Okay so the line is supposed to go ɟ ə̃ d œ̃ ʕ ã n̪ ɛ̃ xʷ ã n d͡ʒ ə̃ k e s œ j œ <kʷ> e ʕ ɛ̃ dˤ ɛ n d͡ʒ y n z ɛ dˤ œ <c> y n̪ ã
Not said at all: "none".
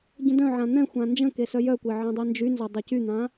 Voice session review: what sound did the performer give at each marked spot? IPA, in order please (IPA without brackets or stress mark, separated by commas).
kʷ, c